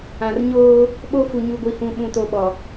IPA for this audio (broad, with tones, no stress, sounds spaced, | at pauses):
ã˨ r ɲ oː˦ | ɓ o˦ f u˨ ɲ u˦˨ ɡʷ i˦ h ũ˦˨ ɓ ũ˦˨ t o˦ ɓ ɔ˨